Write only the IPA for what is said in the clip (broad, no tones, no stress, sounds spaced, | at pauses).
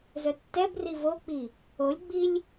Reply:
z œ tː ɛ b r i v o k͡p i | o lʲ ɡ͡b i lʲ